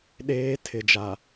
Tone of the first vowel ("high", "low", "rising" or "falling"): high